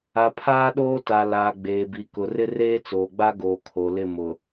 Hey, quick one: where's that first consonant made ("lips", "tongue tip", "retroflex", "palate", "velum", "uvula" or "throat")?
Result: lips